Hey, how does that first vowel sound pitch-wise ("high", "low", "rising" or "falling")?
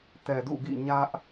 low